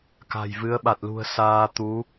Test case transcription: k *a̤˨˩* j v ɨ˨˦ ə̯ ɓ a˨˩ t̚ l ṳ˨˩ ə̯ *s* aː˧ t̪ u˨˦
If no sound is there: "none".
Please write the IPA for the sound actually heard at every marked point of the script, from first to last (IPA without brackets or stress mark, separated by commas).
a̤˨˩, s